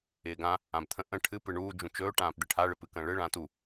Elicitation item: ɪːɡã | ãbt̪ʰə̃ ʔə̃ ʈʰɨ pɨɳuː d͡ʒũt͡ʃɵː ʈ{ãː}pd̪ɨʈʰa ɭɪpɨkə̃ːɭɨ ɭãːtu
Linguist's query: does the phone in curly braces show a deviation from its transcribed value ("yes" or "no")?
no